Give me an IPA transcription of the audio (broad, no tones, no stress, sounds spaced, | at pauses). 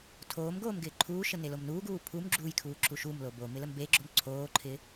tʰ oː m ɡ oː m ɡ ɪː ǃʰ uː ʃ ə n e l o m n uː ɡ uː pʰ u m ɡ͡ǁ u j kʰ uː ǁ u ʃ u m l o b o m ɪ l ə m b e ɡ͡ǁ o m ǀʰ oː ǃʰ ɪː